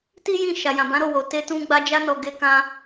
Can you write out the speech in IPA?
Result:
ti˦jĩ˦˨ ʃa˨jã˨bã˨˦ ɾo˦˨wo˨ te˧tũ˧ ɡ͡ba˧d͡ʒa˧nɔ˨ ɡe˧kã˧

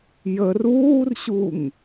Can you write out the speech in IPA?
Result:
jər uːrɕuŋ

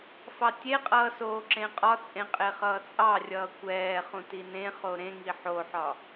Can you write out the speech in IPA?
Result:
fɑtʲeqʼʌː soːǁẽqʼɒt͡sʼẽ qʼeχʌːt͡sʼɑrʲʌː kʷɛːχũ tinẽχo ɾẽŋi ħoħɒ

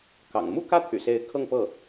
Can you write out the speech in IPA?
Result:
kɑ̰˨˩ŋ mu˥˧kä˥˩ t̪ʰy̰˨˩se˧˥ɪ̯ kʰɤ˥˧ŋpɤ˥˩

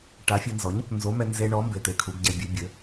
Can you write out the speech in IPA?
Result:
ʈa˨˥fʲɨ˧nzɔ˨˥ɲ | nzo˨˥mɛ˧nze˧ɳɔ˨˥ mbe˧t̪e˧kʰu˨˥ɡ ɟɛ˧bʲɨ˨˥bʲɘ˨˥

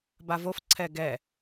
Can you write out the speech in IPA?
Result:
bavof ǀʰɛɡɛ

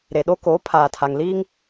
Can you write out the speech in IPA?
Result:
ɾe˨ɗo˦ koː˨˦pʰaː˨ tʰa˨ŋliː˦ŋ

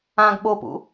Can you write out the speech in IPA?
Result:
ãɡ ɓopṵ

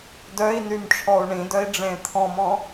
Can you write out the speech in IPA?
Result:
dœi̯nym ʈ͡ʂʰɔu̯ɳĩdœi̯ ɖ͡ʐẽt̪ʰɔ̃mɔ̃

